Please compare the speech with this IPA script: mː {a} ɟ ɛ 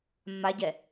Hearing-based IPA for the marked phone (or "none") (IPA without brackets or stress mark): a